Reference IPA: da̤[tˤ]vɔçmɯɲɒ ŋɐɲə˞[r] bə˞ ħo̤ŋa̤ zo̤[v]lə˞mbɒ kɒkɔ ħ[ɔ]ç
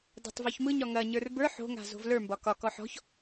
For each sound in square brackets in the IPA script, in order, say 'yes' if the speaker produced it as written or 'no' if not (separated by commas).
yes, yes, yes, no